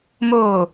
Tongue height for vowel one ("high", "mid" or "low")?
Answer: mid